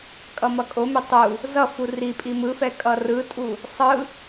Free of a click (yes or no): yes